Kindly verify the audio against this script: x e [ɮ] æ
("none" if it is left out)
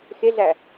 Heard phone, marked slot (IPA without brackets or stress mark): ɮ